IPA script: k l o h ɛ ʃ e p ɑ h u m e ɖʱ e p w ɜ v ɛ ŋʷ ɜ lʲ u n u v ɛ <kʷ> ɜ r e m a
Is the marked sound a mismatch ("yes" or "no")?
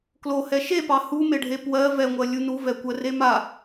no